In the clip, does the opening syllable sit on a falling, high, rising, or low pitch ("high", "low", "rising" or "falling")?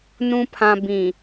low